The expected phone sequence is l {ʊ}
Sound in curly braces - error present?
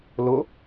no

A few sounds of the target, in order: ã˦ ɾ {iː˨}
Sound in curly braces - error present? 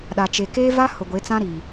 no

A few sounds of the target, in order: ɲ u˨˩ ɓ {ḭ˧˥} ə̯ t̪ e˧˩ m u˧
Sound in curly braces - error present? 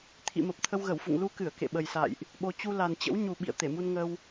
yes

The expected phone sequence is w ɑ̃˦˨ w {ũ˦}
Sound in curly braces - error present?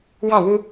yes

